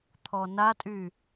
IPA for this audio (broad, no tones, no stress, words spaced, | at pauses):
t̪ʰɔnatʼy